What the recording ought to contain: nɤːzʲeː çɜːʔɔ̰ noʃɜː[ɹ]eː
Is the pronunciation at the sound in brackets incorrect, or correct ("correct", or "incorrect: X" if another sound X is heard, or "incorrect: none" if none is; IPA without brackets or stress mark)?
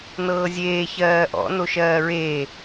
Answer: correct